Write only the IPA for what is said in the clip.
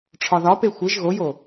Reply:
ʈ͡ʂʰɒðɒpe xʷeʒ ɣojo

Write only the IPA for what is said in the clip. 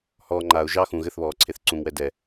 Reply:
hɔː ŋ͡ǃaʊ̯ ʒɑ xũ ɣɘθβɔː ǀʰeθǀũŋwɛ dɛ

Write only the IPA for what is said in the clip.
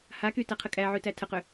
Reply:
hakytæqʰə kʼæʕytæ tʰəqʏ

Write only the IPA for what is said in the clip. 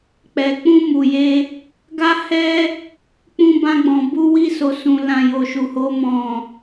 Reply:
k͡pɛ˨ k͡pũ˧ mu˨je˧ | ɡa˦hɛ˦ | k͡pũ˧bã˧ɡ͡bɔ̃˨ bu˧wi˧ so˨sũ˨ lã˨ jo˨ʃu˨ho˧ mɔ̃˨

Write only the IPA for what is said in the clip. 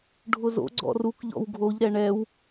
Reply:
ɖʱʊzo̰ ɡ͡ǀɔ̰ruk ʎɔ̰wɡʱoʎ ɾɛɳɛw

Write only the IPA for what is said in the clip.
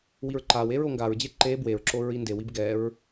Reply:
wiɹǃawe ɹoŋɡaɹd͡ʑe ǃe bweɹǁoɹ indewib ɡɛɹ

